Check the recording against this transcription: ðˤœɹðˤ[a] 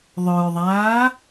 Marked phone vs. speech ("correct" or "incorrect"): incorrect